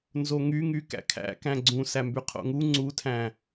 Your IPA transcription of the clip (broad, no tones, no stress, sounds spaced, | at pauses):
n z o ŋ y ŋ y k æ̰ kʰ æ̰ k æ̃ ɡ͡ǀ ũ s æ m b y qʰ o̰ ŋ u ŋ͡ǀ u tʰ æ̃